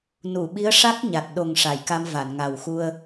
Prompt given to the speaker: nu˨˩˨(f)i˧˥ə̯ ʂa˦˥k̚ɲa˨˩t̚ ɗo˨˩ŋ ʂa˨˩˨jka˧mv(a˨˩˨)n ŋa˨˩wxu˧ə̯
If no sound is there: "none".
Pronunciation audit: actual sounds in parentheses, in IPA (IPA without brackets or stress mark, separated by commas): ɓ, a˨˩˨